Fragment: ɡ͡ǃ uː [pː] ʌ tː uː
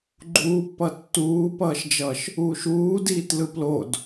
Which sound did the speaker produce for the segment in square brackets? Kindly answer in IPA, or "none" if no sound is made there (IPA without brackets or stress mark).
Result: pː